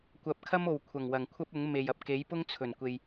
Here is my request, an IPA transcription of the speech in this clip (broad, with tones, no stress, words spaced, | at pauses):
kʷɐ˨p̚kʰɐ˥mo˨˩w kʷʰɐ˨˩ŋwɐ˨˩ŋ kʷʰɐ˥p̚ʊ˨˥ŋme˨j ɐ˨p̚ke˨˥jpʊ˥ŋ t͡sʰɵ˨˩n kʷe˨j